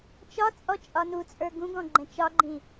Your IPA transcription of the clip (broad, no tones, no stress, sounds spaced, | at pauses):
t͡ʃ ɒ t͡sʼ ɔ t͡ʃʼ ɒ n u t͡sʼ ə˞ ɡ ũ ɡ ɔ̃ ɡ͡ǃ ɛ̃ t͡ʃ ɒ ɡ͡ǃ ĩ